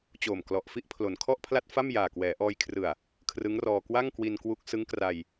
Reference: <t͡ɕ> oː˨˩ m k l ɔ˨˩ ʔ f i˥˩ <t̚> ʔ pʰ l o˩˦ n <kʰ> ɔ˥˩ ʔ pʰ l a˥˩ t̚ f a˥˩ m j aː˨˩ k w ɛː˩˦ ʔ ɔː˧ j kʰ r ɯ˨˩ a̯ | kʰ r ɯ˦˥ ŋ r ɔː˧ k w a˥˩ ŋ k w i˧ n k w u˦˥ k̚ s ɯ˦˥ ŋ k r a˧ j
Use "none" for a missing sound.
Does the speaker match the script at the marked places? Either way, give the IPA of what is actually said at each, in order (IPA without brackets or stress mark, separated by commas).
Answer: t͡ɕ, none, kʰ